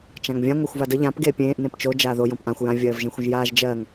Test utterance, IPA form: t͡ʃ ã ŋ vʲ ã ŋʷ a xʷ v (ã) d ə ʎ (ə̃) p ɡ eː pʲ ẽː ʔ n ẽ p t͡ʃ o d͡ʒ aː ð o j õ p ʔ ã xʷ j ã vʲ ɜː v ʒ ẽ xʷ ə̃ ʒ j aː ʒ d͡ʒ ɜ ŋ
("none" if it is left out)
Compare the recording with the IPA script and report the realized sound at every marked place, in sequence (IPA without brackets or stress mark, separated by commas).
a, ã